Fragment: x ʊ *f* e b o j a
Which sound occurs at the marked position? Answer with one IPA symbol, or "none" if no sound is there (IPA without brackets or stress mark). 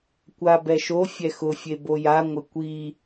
fʲ